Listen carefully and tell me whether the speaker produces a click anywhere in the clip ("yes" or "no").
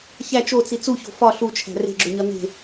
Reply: yes